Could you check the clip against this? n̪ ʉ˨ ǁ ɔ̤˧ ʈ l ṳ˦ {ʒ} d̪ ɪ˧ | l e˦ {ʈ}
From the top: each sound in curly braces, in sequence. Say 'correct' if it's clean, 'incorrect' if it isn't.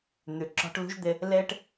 correct, correct

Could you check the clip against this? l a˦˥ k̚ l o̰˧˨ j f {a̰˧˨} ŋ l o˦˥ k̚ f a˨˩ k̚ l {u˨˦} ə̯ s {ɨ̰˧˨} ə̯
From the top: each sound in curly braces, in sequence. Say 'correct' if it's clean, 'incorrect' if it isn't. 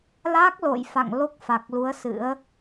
correct, correct, incorrect: ɨ̰˧˥

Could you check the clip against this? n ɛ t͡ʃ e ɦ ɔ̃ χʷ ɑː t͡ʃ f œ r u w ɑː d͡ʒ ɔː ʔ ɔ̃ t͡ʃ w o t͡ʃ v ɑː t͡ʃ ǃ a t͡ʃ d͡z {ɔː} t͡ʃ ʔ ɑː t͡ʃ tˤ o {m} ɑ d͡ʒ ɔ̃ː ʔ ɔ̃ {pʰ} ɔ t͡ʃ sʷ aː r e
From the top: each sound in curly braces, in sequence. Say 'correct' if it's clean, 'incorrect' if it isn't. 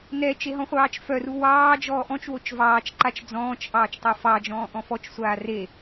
incorrect: ɔ̃ː, incorrect: f, incorrect: f

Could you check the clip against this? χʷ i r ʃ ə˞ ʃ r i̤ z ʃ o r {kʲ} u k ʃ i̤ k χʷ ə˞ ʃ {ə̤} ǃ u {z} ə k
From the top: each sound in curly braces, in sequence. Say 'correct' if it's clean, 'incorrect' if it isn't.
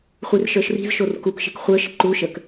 incorrect: k, correct, incorrect: ʃ

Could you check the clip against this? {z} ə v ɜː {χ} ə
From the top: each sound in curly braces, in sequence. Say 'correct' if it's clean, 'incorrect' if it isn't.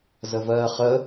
correct, correct

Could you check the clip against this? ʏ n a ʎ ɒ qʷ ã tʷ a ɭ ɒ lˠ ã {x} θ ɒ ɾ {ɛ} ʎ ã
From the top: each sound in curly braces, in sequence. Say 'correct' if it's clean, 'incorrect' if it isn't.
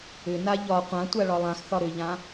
correct, incorrect: ʏ

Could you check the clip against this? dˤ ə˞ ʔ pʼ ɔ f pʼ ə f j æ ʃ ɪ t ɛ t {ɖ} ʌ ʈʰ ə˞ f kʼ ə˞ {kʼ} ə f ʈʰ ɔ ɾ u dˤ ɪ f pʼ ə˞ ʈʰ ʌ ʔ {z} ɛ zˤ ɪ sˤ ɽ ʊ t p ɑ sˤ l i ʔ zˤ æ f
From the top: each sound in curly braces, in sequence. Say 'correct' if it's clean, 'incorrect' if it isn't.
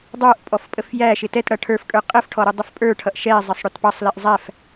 incorrect: ɽ, incorrect: qʼ, incorrect: ʃ

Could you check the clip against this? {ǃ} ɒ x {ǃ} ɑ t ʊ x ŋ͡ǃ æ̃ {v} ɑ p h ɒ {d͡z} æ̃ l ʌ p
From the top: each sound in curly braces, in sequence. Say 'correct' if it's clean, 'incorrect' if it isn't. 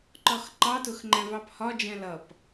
correct, correct, correct, incorrect: d͡ʒ

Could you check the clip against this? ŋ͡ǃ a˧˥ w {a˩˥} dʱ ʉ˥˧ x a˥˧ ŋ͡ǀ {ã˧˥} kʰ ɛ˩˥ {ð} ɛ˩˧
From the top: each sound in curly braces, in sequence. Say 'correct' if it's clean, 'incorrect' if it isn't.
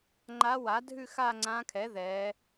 correct, correct, correct

